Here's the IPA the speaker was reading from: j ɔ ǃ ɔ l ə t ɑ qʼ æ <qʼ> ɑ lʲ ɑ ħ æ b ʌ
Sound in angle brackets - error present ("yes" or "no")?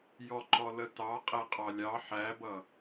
no